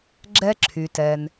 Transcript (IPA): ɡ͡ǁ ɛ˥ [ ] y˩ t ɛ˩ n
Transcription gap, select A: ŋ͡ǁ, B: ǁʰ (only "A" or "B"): B